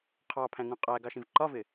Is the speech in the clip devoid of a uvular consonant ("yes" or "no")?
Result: no